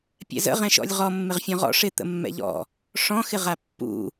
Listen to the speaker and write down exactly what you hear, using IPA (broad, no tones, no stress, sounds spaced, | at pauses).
pʲ ɛ̰ z ə̰ ʁ ɛ̃ ʃ ɔ̰ lʲ ʁ ɔ mː ɪ ʁ fʲ ɔ̃ ʁ ɔ̰ ʂ ɪ t̪ ə̰ mː ɛ̰ ʎ ɔ̰ | ʂ ɔ̃ x ɪ ʁ a pː ṵ